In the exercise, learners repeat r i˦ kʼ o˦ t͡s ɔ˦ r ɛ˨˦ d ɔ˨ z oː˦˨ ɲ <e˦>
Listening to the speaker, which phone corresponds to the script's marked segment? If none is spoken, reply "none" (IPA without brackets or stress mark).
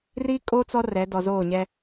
ɛ˦